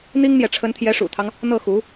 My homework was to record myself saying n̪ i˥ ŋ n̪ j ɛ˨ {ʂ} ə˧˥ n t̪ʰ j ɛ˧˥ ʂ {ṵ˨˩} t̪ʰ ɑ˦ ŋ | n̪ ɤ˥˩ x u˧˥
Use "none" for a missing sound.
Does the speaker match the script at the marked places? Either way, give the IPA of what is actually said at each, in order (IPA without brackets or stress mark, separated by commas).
ʈ͡ʂʰ, ṵ˨˩